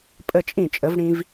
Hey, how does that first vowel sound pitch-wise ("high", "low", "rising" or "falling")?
falling